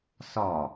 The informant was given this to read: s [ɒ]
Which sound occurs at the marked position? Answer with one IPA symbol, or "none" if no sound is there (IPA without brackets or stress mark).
ɒ